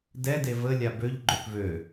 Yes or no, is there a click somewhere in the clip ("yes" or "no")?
yes